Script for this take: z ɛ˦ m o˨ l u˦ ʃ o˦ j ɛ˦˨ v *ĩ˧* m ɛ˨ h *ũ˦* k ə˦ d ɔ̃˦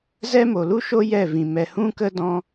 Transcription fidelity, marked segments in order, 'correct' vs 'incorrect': incorrect: ĩ˨, correct

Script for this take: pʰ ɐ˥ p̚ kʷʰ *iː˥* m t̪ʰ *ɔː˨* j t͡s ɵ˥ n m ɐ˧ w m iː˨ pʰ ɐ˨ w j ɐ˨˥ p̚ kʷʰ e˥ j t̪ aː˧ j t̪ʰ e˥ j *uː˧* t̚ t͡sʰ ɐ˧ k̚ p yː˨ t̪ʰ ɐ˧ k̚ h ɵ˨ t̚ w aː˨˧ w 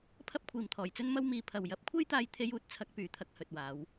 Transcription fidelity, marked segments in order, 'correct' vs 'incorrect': incorrect: iː˨, incorrect: ɔː˨˩, correct

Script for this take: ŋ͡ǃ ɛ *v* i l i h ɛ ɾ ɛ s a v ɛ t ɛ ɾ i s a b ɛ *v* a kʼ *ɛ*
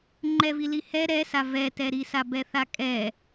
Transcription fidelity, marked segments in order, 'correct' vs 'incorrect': correct, incorrect: θ, correct

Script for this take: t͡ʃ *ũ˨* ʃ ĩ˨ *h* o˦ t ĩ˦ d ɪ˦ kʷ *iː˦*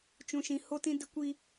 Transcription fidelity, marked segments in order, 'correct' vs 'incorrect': correct, correct, incorrect: i˦

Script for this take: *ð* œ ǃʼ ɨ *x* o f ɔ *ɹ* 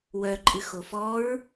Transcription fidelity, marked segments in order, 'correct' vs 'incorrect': incorrect: w, correct, correct

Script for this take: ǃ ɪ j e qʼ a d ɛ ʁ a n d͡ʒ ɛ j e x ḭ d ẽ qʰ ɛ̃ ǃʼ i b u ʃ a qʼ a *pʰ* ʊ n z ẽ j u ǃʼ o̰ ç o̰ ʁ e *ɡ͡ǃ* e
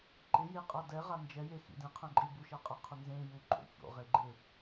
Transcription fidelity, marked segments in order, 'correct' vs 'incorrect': incorrect: qʰ, correct

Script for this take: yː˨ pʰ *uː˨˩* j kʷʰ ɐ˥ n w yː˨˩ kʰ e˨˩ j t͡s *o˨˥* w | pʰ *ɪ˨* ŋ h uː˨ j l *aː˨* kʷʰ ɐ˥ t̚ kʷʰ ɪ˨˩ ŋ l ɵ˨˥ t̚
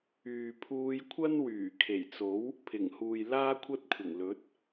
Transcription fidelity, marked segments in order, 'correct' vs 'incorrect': incorrect: uː˧, correct, incorrect: ɪ˨˩, incorrect: aː˥

